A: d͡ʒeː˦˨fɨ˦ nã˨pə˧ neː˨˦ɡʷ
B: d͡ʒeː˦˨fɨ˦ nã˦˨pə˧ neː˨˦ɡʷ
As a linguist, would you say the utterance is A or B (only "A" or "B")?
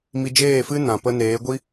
A